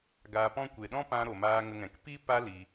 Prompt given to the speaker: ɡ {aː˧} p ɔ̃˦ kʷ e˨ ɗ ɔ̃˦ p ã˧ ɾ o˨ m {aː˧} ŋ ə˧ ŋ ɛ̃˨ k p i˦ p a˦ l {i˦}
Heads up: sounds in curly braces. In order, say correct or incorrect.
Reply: correct, correct, incorrect: i˧

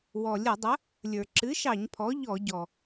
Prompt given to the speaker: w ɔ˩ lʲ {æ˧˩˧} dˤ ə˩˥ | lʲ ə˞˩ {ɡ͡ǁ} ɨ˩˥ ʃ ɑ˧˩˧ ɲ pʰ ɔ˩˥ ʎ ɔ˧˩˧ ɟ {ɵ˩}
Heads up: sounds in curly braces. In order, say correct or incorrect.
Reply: incorrect: ə˧˩˧, incorrect: ǁ, incorrect: ɔ˩

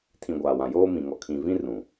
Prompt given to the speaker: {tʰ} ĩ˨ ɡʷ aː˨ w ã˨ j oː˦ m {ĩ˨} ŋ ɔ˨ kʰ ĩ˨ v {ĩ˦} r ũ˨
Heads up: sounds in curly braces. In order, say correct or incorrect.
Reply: correct, correct, correct

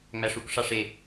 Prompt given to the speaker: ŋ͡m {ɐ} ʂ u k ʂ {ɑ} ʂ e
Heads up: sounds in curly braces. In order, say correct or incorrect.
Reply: incorrect: æ, correct

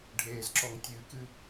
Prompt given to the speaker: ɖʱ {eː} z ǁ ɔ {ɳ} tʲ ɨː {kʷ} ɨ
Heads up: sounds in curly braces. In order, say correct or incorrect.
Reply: correct, incorrect: ŋ, incorrect: k

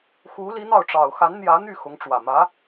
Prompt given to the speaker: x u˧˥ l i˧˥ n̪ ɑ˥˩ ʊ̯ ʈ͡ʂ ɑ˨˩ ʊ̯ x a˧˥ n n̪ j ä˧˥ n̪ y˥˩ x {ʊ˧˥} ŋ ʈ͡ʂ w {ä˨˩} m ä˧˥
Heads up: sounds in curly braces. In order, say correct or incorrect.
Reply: correct, correct

